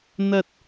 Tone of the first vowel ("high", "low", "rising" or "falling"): high